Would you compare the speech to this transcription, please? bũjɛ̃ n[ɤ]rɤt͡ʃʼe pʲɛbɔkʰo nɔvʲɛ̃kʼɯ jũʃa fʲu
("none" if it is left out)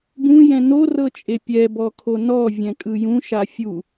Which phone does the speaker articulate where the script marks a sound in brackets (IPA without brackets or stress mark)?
o